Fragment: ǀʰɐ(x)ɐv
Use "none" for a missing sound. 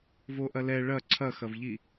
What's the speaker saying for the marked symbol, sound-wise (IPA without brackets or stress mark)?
x